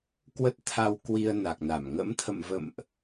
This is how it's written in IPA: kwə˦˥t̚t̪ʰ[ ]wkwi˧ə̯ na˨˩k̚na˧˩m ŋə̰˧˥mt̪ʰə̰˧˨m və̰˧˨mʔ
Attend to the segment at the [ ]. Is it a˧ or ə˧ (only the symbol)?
a˧